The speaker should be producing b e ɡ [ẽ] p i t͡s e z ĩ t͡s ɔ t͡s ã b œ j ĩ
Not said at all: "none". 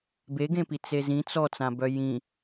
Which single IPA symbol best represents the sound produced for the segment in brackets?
ẽ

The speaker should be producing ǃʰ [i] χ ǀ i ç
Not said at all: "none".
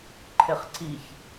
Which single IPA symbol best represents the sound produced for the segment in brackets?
e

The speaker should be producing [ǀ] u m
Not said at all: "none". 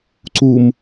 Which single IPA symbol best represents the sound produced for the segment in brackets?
ǀ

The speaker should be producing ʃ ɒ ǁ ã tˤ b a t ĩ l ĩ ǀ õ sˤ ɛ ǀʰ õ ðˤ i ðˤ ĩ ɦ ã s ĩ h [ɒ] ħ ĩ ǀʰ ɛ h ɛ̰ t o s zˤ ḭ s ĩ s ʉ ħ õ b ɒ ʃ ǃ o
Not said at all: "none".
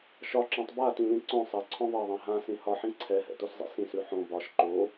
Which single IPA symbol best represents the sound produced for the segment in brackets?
ɒ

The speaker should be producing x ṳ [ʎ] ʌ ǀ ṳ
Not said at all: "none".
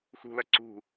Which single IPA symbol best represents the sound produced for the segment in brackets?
l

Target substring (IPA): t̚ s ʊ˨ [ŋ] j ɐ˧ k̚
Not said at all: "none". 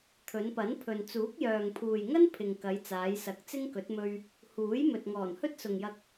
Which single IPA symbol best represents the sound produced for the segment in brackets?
ŋ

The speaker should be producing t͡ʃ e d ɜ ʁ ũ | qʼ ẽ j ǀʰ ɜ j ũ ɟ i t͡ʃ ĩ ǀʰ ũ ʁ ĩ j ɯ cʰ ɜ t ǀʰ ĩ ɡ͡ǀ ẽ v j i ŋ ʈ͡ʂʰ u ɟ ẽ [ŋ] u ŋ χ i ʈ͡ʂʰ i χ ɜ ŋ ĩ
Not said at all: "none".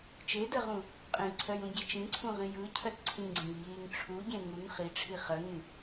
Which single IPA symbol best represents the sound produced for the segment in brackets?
ŋ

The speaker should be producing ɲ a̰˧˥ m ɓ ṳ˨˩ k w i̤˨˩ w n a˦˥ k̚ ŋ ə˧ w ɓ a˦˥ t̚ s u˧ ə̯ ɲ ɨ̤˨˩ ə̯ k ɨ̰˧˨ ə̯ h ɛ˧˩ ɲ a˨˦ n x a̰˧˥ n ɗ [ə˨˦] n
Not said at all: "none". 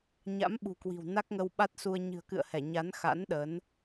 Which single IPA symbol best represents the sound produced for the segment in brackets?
ə˨˦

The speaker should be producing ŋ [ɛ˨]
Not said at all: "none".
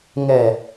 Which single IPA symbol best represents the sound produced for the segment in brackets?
ɛ˨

